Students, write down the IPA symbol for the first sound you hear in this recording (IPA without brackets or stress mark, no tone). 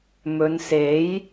m